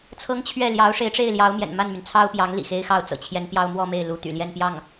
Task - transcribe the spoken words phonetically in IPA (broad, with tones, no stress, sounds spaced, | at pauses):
t͡sʰ ɤ˥ ŋ t͡ɕʰ ɥ ɛ˥˩ l j ɑ˧˥ ʊ̯ ʂ e˧˥ ɪ̯ ʈ͡ʂ e˥˩ ɪ̯ l j ɑ˧˥ ʊ̯ m j ɛ̰˨˩ n m a˥˩ n m y˩ n t͡sʰ ɑ˥ ʊ̯ p j ɑ˧˥ ŋ l ḭ˨˩ x e˥ ɪ̯ x ɑ˥ ʊ̯ t͡s ɤ̰˨˩ t͡ɕʰ j ɛ˧˥ n p j ɑ˥ ʊ̯ m w ɔ˥˧ m e˥˩ ɪ̯ l u˧˥ t̪ y̰˨˩ l j ɛ˥˧ n p j ɑ˥˩ ŋ